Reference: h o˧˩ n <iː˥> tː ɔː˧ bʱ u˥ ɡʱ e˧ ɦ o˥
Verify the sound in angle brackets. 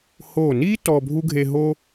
correct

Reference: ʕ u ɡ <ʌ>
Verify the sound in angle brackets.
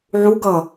correct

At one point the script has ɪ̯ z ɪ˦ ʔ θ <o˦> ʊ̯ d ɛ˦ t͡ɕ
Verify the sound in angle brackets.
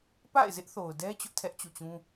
incorrect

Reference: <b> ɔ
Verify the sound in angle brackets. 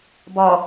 correct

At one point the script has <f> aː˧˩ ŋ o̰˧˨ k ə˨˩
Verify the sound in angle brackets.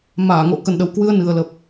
incorrect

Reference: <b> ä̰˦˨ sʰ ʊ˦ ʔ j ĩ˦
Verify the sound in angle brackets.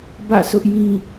correct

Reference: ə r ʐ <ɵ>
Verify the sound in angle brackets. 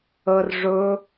correct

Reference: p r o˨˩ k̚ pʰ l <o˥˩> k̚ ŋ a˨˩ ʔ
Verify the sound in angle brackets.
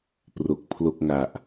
correct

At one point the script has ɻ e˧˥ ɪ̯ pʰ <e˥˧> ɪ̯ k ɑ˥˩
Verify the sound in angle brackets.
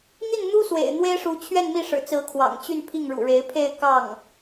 correct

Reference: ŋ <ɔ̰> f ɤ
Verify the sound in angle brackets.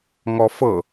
incorrect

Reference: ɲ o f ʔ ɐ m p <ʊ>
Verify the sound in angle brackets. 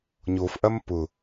correct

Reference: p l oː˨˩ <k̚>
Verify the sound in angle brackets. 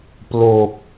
correct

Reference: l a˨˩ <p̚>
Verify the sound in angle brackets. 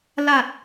incorrect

